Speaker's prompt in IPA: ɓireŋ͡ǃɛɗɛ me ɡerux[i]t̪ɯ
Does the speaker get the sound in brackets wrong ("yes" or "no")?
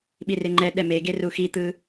no